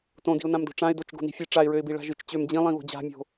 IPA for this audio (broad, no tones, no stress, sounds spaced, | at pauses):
t õ d i̤ ʊ̯ n ã m d o̤ ʈ͡ʂ ã ɪ̯ d o t͡ʃ ɡ o̤ n i̤ fʲ ɨ ʈ͡ʂ a ɪ̯ ɹ ø ɪ̯ b i ɭ a̤ ʒ ɨ t͡ʃ t͡ɕ ø m d͡ʑ ĩ lˠ ĩ β o̤ d͡ʑ a̤ mʲ o̤